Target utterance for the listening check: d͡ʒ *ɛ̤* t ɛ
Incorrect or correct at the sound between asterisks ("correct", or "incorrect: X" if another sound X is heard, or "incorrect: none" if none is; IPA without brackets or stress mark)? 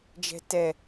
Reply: correct